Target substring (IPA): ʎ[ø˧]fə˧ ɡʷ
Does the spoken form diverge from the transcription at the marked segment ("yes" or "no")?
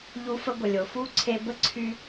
yes